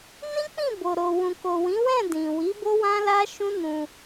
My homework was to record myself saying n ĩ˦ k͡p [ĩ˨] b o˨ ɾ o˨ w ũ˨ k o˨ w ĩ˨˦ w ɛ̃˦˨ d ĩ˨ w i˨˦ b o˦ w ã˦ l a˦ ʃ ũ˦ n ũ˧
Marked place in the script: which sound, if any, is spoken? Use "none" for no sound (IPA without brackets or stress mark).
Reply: ĩ˦˨